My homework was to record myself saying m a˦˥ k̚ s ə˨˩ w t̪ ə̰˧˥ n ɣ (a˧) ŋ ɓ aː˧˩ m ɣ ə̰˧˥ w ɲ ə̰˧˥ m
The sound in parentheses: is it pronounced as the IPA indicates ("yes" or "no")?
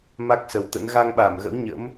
yes